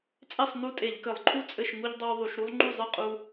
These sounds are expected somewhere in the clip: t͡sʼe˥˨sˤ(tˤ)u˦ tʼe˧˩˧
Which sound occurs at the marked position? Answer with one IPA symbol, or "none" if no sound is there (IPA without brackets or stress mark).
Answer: n